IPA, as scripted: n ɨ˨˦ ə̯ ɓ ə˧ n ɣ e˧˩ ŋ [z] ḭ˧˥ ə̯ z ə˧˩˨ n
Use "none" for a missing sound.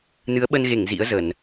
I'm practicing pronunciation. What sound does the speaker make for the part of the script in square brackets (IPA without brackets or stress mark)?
z